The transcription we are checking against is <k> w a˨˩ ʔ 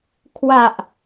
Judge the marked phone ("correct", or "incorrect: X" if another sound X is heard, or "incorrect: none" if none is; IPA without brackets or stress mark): incorrect: kʰ